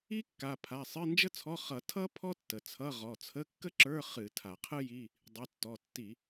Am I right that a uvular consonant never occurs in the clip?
no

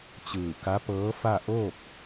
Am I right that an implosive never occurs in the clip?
yes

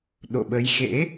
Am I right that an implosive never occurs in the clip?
no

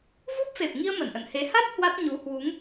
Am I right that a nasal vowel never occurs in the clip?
yes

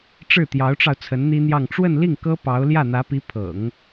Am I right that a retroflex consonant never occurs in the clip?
no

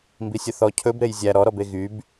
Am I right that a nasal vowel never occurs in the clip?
yes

